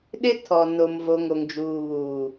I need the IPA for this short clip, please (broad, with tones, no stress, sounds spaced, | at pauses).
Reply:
ɗ ɪ˦ tʰ ɔ˨ n o˨ m v o˨ ŋ o˨ ŋ d͡ʒ uː˨ β uː˨